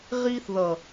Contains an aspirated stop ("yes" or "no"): no